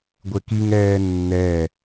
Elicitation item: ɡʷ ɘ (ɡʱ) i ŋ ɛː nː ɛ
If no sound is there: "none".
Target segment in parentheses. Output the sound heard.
k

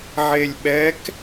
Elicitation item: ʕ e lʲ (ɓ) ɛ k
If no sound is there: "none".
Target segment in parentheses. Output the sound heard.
ɓ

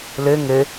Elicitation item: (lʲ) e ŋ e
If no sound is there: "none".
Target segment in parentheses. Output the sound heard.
l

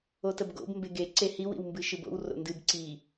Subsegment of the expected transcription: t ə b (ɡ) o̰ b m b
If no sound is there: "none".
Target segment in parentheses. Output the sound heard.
ɡ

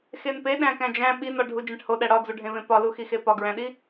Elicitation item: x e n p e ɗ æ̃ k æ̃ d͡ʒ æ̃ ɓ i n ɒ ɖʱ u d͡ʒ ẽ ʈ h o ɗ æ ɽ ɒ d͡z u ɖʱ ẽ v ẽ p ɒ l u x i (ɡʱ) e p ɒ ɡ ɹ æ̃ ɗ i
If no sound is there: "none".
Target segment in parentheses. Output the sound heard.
x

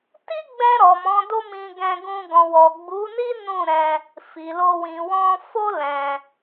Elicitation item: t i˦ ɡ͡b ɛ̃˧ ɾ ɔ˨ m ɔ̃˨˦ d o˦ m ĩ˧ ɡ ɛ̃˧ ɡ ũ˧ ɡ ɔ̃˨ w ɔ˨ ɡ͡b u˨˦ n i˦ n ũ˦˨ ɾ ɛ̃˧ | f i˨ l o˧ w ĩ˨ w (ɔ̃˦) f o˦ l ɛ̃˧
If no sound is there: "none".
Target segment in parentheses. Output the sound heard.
ɔ̃˧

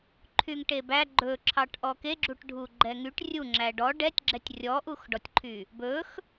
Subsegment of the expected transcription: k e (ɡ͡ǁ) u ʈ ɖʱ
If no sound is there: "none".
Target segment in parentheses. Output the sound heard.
ɡ͡ǁ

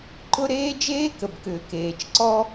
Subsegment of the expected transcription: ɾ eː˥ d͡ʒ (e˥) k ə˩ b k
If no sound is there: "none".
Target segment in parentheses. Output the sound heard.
eː˥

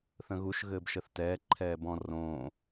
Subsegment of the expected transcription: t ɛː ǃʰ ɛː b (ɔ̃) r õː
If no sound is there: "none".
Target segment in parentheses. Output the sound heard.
ɔ̃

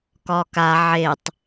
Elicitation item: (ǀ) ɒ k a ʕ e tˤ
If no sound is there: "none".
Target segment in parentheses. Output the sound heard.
k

